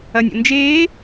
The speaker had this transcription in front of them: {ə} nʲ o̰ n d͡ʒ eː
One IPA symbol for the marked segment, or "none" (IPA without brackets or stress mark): ɐ